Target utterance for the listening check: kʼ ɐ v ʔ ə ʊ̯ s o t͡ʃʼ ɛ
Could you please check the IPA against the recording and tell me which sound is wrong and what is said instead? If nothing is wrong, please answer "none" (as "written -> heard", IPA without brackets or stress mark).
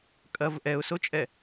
ə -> ɛ